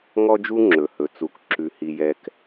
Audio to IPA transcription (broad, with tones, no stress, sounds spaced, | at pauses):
ŋ ɔ˦ d͡ʒ u˦ ŋ͡ǁ ɵ˨ h ɵ˨ t͡s u˨ k ǁ ʉ˨ h i˨ j ɛ˨ k